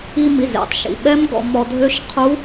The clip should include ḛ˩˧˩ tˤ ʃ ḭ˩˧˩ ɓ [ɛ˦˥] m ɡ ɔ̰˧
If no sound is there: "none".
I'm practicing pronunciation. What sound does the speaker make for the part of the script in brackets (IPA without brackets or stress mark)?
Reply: ɛ˦˥